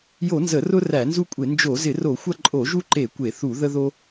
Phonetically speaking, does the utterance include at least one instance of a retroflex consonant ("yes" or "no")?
no